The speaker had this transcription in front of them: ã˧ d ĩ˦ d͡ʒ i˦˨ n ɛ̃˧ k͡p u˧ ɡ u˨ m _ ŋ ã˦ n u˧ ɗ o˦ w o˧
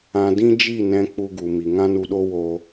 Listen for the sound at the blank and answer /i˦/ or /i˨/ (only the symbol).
i˨